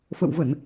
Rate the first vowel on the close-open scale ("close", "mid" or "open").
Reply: mid